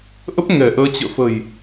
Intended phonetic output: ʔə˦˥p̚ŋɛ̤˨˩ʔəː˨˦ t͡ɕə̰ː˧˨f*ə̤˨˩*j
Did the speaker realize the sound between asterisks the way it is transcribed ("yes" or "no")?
yes